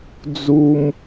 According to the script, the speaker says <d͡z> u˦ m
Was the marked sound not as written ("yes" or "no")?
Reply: no